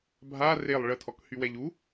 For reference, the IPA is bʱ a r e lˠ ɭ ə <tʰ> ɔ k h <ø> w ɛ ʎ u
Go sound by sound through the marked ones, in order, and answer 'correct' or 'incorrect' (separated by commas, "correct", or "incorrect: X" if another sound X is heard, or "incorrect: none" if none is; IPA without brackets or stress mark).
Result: correct, incorrect: y